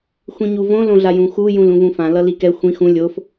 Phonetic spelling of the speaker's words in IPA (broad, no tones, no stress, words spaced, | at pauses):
xʷĩɲuvõ lõɮajũxu jũlũvũfã lʌlikɛ xʷĩx ũ lʲof